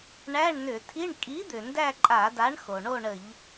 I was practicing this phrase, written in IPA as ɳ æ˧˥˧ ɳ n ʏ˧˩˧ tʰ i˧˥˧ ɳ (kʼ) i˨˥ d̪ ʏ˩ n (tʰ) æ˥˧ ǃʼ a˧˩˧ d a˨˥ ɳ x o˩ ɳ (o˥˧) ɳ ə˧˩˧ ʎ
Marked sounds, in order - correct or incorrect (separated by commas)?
correct, incorrect, correct